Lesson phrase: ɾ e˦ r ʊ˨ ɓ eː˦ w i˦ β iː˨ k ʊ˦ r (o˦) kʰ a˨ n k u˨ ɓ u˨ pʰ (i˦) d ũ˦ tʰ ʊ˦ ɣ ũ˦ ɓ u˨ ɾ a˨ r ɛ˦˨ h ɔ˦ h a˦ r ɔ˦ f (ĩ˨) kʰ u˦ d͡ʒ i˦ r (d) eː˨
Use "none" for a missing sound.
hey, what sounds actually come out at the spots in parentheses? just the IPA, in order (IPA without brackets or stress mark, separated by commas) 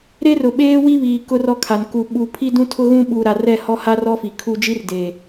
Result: ɔ˦, i˦, i˨, d